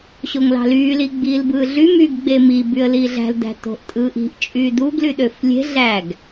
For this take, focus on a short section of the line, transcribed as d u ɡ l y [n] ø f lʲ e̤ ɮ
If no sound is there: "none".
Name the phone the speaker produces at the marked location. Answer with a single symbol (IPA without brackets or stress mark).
ɗ